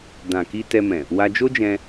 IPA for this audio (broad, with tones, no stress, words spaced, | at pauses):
dã˨ki˧ tɛ˧mɛ̃˨ | wa˧d͡ʒo˦d͡ʒɛ̃˧